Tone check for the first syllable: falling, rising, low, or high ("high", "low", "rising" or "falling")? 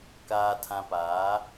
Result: low